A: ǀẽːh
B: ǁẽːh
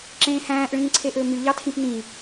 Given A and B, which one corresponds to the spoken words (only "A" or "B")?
B